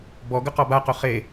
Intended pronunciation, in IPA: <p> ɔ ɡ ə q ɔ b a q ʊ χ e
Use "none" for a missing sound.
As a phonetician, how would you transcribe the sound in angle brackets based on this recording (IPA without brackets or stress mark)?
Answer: b